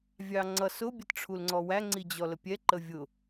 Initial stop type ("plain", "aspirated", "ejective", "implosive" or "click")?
click